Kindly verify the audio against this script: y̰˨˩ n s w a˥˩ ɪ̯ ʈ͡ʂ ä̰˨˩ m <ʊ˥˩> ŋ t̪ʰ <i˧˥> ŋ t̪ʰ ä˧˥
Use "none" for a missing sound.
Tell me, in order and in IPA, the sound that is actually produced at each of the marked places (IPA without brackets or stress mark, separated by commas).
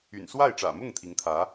ʊ˥˩, i˧˥